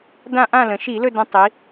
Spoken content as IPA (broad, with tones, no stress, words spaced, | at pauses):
dã˦˨ʔã˦˨lə̃˩˧ ʃi˧˩˧lɵ˦˨ də̃˧˥tˤi˩˧